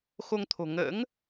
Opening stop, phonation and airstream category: aspirated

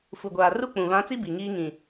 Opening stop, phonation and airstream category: plain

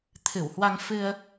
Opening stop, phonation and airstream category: aspirated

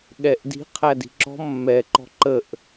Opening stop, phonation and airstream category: implosive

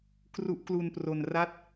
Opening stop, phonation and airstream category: plain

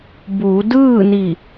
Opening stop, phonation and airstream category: plain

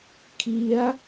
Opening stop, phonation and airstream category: aspirated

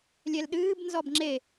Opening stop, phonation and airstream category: implosive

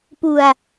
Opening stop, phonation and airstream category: plain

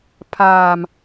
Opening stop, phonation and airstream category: aspirated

